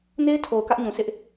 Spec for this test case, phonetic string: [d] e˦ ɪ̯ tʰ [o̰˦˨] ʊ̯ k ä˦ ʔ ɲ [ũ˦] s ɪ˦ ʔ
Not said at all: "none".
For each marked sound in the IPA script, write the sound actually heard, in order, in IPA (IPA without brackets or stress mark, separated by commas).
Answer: n, o˨, ũ˨